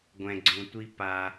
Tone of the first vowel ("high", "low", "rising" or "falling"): low